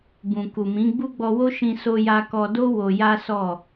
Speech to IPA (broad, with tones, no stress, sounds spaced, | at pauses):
b ũ˨ k u˨ m ĩ˨˦ ɡ͡b u˦ ɡ͡b ɔ˧ w o˦ ʃ ĩ˧ s o˧ j a˧ k ɔ˧ d o˦ w o˧ j a˦ s ɔ˦˨